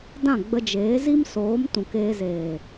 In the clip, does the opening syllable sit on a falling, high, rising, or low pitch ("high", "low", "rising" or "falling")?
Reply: falling